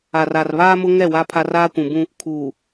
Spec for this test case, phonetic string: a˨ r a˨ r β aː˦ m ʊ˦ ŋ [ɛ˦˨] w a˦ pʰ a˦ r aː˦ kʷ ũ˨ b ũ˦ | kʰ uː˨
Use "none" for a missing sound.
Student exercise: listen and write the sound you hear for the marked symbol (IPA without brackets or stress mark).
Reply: ɛ˦˨